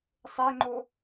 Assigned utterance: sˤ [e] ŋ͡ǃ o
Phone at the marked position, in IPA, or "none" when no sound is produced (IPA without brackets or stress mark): e